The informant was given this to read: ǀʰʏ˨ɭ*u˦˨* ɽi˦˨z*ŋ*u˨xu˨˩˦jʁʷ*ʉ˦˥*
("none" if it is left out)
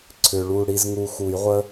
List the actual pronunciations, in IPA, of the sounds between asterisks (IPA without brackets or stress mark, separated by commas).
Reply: u˦˨, ŋ, ə˦˥